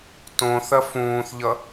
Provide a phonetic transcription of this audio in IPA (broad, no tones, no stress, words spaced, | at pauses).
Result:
tõθɐ fũːθʎʌ